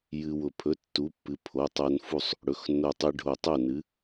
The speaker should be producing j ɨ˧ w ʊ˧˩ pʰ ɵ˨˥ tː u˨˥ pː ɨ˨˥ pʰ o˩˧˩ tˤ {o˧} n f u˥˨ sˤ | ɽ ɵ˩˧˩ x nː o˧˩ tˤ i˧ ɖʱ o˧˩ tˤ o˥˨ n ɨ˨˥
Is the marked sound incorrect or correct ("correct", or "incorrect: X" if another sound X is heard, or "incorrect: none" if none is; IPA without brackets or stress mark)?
correct